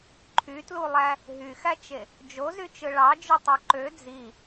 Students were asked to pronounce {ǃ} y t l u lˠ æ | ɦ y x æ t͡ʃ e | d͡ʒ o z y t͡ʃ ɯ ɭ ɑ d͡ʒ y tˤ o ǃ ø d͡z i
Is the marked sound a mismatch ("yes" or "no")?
yes